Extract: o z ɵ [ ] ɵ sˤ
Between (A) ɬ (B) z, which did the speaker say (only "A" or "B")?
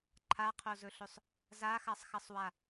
A